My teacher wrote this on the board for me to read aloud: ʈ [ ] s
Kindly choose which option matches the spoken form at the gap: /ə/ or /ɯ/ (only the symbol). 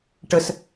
ə